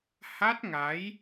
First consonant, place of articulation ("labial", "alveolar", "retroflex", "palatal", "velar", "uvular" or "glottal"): glottal